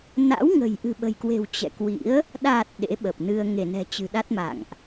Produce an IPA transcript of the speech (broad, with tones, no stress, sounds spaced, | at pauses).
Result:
n a̰˧˥ w ŋ ə̤˨˩ j ʔ ɨ̤˨˩ ɓ ə̤˨˩ j k w e̤˨˩ w t͡ɕ ɛ̰˧˨ k w ḭ˧˥ ə̯ | ɗ a˨˩ t̚ ɗ ḛ˧˥ ɓ ə˨˩ p̚ n ɨ˧ ə̯ ŋ e˧˩ n ɛ̤˨˩ t͡ɕ ɨ̤˨˩ ɗ a˦˥ t̚ m a̰˧˨ ŋ ʔ